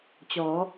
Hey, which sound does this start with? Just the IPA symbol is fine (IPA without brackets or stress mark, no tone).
t͡ɕ